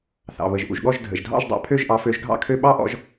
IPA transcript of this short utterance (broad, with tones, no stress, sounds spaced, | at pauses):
θ ɑ̰˩ β ə˩ ʒ ʔ ṵ˩ ʒ ɠ ɔ˥˩ ʒ dʱ ə̰˩ ʒ dʱ ɑ̰˥˩ ʒ dˤ ɑ̰˩˥ pʰ ø˥˩ ʒ ʔ ɑ˩˥ f ø˩˥ ʒ ɡʱ ɑ̰˥˩ kʰ ø˥˩ ɓ ɑ˥ ʔ ɔ̰˩˥ ʒ